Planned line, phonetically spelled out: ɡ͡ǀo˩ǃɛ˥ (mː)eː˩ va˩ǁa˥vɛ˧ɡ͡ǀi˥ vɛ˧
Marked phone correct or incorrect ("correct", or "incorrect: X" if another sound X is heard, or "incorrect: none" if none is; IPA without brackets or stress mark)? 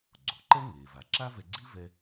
incorrect: ŋ